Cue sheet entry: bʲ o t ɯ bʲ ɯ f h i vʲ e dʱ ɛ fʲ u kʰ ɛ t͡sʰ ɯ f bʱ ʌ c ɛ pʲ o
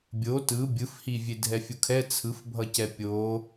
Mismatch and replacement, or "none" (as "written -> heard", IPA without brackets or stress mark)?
none